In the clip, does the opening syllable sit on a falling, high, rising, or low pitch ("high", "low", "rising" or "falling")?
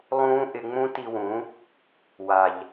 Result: high